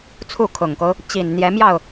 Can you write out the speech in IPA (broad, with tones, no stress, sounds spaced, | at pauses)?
t͡sʰ u˥˩ kʰ ʊ˨˩ ŋ k o˦ ʊ̯ | t͡ɕ i˨˩ n n̪ j ɛ˧˥ m j ɑ˥˩ ʊ̯